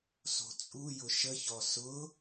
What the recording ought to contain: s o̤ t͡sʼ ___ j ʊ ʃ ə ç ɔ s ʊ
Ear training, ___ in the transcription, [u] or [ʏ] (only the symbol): u